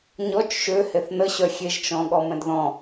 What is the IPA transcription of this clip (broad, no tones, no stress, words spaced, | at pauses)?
ɲɔt͡ʃ ʃø heθnəɕœ xʲeʒt͡ʃɔ̃ ɠɔmɛ̃dðɔ̃